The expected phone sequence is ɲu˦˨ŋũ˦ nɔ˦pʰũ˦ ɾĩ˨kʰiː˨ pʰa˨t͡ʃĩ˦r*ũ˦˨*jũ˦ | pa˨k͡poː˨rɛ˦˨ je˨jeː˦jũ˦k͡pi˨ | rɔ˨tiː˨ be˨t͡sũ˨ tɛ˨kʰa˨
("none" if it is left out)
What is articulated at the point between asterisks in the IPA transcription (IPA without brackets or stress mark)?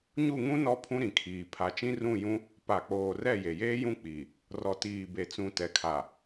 ũ˦˨